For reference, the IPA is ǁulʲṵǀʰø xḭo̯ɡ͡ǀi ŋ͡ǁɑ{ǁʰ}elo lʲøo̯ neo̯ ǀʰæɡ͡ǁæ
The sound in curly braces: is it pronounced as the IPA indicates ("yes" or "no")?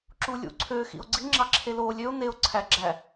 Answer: yes